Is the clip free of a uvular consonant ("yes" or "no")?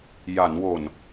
yes